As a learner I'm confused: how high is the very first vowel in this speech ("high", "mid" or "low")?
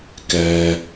mid